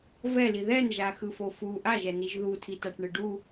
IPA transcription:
vɛli ðɛnʒaxɯfo fu ʔaʒɛniʒ ðutʰitaʈɳɯ ɖu

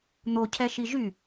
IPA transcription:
n̪ocʰɛʃi ʒy

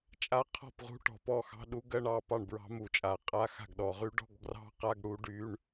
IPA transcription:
t͡ʃʼa˧˥˧qʰɔ̤˥˩pʁṳ˧˥˧ʈɔ̤˧˩˧p ɔ˥˩xɑ̤˧˥˧ɗu˦˥ ɡɜ˧˥˧ɳɑ˥˩ pɑ˥˩ɳbɹɑ̤˦˥mu˧˩˧t͡ʃʼa˧˩˧ qʼa˧˥˧xa̤˥˩ɡɗɔ˧˩˧ʁy˦˥ ɖɔ̤˧˥˧ɡbrɑ̤˦˥qa˧˥˧ɡ ɽu˦˥ ɖy˧˥˧ɳ

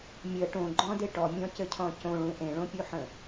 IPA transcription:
mʲə ʈõɡ͡ǃɔ̃de ʈɔmʲɔ̃cɘcʰɔ̃ cõɭũ ʔẽɭõpʲuħə̃

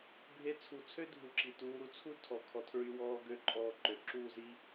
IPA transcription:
bʱe˧t͡sʰu˨t͡sʰø˦ dʱu˧ǁi˨ tuː˧ɾu˦ t͡sʰu˦ tʰɔ˨ kʰɔ˧tʰɹy˧ wɔː˧ ɡø˨˦ǃʼɔː˨ ǃø˨ǁuː˦˨zi˦

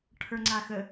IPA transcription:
ʈʰə˞ŋ͡ǀaxə

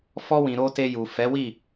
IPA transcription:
fɔ˧wĩ˨ ɾo˧te˧ju˨ fɛ˨˦wi˦˨

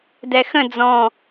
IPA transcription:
dɛxə̃ d͡zɔ̃

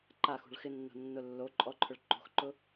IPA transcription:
ǃaxṳɭ xɪnːo̤nːʊ lːo ǃʼɔǃʰʊɭ ǃo̤xǃʊ

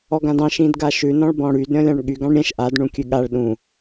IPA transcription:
ɔɡãdɑ̃ʃ ĩdɡaʃʉ nɔ̃ɭbɔ̃ɽyd ɾʲɔ̃lʲɑ̃ɳɠyɡ ɑ̃ɳɾʲɛ̃ʃ ʔad ɳũkʲʉɠaɭ ɗũ

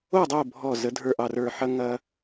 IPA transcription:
o˥˨dˤo˥˨ bʱɔ˧˩ zə˨˩˦dʱə˞˧˩ʔɑ˧˩rə˞˧˩ ħɐ˦ ŋɐ˦

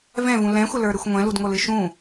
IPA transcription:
vɛ̃vũ lɛ̃xʷɘlə˞ɾɨxʷ ŋʷɛ̃ludŋolɨ ʃũ

